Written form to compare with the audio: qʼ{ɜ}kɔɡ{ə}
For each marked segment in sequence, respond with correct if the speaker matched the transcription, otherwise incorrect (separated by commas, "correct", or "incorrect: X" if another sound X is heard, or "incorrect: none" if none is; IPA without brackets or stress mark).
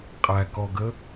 incorrect: æ, correct